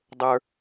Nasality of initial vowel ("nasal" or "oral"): oral